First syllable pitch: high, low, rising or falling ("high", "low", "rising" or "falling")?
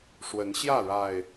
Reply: rising